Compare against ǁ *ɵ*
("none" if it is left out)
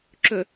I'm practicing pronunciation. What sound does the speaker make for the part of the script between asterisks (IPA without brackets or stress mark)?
ɵ